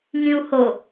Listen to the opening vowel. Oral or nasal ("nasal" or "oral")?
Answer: nasal